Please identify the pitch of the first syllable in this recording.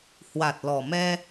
low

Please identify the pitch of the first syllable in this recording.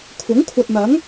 rising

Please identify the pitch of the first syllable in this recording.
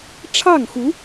falling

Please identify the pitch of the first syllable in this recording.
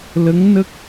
rising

